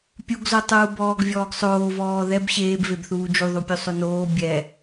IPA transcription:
pʲuɡzotˤuː bɔːɡvʲɔːɡsˤoːv ɔːðɛb ɕeːbvebθuː d͡ʒuðˤupʲu sˤonoː bʲɛ

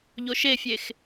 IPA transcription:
ʎoʃefʲex

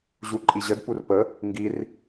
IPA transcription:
ʑuǃʼiʑəd purpə | ŋɡir

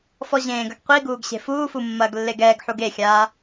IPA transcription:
fɔʑẽːɡɐɡ qʷiɡuːɡ ɕe̤fuːfu mːɐːɡlːeɡɛːɡħuɡ exʲaː

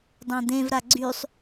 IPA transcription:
dˤãd̪ẽvɾa ɡ͡ǀysˤ

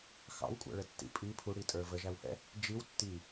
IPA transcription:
xɑ̰wkʷʼæ̰ɭə tːḭ pʼi pʰuɽitʼə˞ vəʒæwhɛ̰ | d͡ʒiw tːi

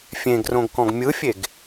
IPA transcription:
fʲẽɡrõɡkɔ̃ɡ mʲɯfʲeɡ

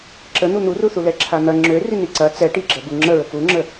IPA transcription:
ǁə n̪un̪uruθu lɛǁʰan̪ɐ ŋ͡ǁø riniǀɐ t͡sɛ ʈiɡ͡ǁɐ buŋ͡ǁəɹə kuŋ͡ǁə

